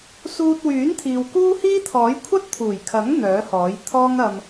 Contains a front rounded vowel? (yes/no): yes